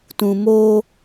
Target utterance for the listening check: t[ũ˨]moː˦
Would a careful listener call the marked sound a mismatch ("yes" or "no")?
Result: no